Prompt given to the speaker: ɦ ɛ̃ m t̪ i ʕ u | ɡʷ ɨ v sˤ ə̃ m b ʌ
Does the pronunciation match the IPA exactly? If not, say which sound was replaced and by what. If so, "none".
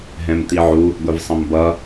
ɨ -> ɪ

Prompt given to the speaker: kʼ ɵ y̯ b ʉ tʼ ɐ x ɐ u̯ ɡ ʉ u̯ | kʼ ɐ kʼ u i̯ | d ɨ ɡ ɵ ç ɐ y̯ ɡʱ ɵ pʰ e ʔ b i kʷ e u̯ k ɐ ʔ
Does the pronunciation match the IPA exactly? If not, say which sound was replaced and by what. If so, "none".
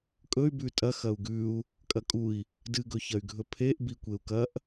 none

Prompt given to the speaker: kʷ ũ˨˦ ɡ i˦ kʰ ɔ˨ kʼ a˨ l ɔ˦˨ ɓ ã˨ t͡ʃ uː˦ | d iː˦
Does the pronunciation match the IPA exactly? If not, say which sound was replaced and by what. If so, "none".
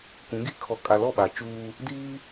ã˨ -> a˨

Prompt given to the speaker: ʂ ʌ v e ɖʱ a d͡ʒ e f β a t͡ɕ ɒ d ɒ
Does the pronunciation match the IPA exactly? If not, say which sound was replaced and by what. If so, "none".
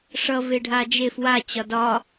β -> w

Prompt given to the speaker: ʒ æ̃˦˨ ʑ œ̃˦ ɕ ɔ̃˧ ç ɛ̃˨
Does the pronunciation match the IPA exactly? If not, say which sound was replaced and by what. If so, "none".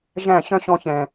ʑ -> ɕ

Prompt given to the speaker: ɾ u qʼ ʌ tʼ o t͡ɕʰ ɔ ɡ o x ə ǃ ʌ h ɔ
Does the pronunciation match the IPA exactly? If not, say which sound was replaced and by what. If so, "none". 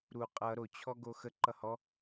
tʼ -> ɾ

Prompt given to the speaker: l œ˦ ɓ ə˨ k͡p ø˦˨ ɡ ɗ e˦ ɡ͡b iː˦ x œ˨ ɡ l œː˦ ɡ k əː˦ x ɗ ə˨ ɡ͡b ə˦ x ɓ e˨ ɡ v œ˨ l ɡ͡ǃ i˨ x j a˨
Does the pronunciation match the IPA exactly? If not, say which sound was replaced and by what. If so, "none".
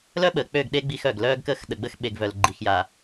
iː˦ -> i˦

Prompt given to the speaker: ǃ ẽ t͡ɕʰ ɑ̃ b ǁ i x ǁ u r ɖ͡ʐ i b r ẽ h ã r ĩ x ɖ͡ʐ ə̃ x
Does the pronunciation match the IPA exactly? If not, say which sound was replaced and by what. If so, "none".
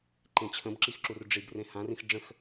ɑ̃ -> ə̃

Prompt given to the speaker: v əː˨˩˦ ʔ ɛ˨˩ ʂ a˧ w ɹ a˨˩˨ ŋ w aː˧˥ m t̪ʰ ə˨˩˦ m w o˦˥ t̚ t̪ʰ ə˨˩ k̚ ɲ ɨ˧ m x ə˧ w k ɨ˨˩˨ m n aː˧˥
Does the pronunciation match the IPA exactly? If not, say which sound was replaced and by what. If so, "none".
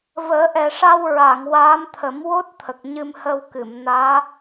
x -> h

